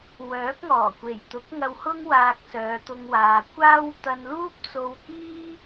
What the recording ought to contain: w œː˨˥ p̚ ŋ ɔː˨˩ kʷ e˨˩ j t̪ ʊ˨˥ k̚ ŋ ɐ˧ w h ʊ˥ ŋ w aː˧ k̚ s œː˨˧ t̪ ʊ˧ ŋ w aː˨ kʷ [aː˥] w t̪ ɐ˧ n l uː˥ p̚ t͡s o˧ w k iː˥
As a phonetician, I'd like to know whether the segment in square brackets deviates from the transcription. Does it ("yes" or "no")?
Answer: no